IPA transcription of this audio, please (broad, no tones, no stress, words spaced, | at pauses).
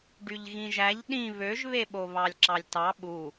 ɖyʎɣĩʒæʎ ɗĩ βøʒβe ɓoβɑlʲǁɑlʲtɑ ɓu